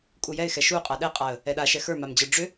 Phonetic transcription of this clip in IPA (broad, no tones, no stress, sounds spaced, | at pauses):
kʼ u j ɛ ɪ̯ x ɛ ʃ u qʼ a ɗ ɛ qʼ a ə̯ | ɛ ɗ a ʃ ɛ x ə˞ m a m d͡ʑ ə˞ ɖ͡ʐ ʏ